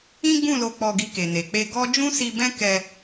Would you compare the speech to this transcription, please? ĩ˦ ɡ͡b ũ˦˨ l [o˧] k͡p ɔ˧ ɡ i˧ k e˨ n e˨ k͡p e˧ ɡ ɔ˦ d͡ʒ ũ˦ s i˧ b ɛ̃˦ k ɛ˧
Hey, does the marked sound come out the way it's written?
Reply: yes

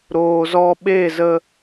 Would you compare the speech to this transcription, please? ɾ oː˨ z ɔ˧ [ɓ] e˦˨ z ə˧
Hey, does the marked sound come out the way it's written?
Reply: yes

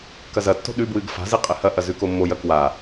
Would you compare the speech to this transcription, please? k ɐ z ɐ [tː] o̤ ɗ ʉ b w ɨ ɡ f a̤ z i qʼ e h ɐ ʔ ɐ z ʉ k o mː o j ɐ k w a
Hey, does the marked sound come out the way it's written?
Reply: yes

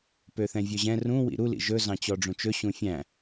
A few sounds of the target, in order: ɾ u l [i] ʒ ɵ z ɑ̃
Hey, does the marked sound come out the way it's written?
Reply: no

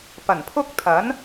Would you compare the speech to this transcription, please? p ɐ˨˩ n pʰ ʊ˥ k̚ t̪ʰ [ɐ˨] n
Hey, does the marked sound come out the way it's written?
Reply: no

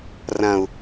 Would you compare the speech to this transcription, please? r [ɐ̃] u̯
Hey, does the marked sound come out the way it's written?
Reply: yes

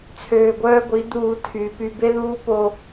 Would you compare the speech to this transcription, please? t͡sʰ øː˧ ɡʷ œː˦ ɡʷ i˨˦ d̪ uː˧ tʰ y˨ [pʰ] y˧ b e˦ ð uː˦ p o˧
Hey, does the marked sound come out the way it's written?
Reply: no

